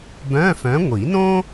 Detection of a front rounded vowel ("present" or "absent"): present